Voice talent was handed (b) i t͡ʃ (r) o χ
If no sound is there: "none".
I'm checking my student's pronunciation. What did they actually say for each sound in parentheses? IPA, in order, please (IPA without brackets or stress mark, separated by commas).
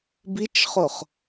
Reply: b, χ